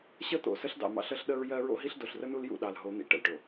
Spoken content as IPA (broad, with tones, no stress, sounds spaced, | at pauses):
ɕ ə˦ t̪ o̰˨ s ə˦ ɬ d ɑ̰˨ m ɑ̰˦ ɬ ə˦ ɬ ɗ ə˦ ɹ j ɜ˦ ɹ o̰˦ ɦ i˦ ɬ d o˨ ɬ r ə˦ n u˦ l j ṵ˦˨ ɗ ɑ˨ l ɦ o˨˦ n̪ ḭ˨ ʈ ə̰˨ l ʈ o˨